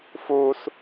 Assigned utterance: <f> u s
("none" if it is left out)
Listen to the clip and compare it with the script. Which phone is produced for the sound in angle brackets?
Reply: f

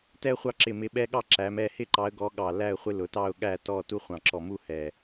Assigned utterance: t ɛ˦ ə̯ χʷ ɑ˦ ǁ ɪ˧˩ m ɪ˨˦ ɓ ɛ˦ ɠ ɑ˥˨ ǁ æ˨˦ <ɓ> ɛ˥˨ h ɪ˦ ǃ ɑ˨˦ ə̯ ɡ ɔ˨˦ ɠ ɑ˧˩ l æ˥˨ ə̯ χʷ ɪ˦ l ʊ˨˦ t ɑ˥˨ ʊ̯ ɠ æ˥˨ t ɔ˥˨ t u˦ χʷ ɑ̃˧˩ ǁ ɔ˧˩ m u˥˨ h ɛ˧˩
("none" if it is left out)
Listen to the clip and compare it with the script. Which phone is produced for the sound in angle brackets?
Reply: m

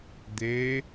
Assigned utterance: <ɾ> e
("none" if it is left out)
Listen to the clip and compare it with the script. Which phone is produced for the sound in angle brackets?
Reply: d̪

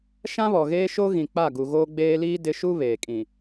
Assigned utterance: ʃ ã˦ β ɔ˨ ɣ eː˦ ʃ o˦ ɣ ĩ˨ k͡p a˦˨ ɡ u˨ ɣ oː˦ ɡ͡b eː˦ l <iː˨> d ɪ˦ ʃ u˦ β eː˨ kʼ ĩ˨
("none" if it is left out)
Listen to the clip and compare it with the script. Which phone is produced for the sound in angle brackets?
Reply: iː˦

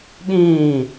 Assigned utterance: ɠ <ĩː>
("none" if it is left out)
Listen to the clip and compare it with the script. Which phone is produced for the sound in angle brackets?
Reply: ĩː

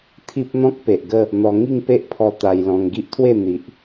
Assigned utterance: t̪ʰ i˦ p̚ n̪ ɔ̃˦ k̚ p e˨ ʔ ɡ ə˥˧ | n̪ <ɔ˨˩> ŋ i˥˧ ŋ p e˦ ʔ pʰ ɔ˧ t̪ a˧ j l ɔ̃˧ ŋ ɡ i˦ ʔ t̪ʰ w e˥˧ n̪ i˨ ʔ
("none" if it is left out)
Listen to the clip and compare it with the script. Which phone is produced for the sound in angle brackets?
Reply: ɔ˧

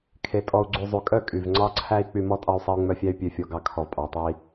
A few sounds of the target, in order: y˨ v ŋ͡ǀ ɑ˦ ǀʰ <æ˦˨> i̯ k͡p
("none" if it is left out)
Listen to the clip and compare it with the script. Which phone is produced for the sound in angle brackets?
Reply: æ˦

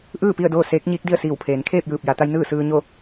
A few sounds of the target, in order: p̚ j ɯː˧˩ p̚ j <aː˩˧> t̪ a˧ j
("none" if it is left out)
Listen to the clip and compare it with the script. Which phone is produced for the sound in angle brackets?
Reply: a˩˧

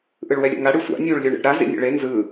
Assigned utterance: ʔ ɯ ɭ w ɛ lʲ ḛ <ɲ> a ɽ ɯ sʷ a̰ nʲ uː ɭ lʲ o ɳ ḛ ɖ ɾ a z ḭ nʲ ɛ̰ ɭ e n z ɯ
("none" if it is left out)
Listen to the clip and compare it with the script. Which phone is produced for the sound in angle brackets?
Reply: ŋ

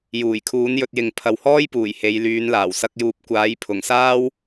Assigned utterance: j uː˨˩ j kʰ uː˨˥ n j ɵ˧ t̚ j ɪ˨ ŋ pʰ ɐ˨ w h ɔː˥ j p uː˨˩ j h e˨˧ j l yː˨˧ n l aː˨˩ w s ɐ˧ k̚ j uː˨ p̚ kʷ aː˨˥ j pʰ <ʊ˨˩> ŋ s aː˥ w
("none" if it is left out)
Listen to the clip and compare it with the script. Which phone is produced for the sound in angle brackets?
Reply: ʊ˨˩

